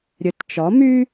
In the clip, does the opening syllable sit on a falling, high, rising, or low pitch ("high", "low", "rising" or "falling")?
rising